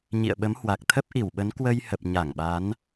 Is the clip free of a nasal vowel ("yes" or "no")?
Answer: yes